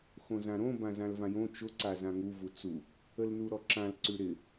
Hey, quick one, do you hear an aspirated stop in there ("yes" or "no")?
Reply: no